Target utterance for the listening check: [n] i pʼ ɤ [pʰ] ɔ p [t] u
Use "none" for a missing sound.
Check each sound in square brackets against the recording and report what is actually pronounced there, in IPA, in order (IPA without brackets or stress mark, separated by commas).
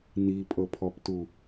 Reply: n, pʰ, t